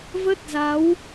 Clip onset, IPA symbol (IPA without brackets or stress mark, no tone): v